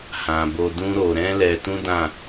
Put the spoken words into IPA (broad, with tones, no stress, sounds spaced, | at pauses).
h ã˨ b o˧ d ũ˦ ɾ o˧ ɾ ɛ̃˦ l ɛ˧ t ũ˦ d ã˦˨